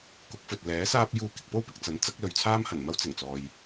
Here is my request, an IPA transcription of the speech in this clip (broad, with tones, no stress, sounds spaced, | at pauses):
k ʊ˨˥ k̚ f ɵ˨ t̚ l ɛː˨˥ s aː˥ p̚ j uː˧ k ɪ˨ k̚ p o˥ w p ɪ˨ k̚ t͡s ɐ˨˥ n t͡s ɐ˨˥ k̚ l ɵ˨ ɥ t͡sʰ aː˥ m h ɐ˨˩ n m ɐ˥ w t͡s ɪ˨˩ ŋ t͡s ɔː˨ j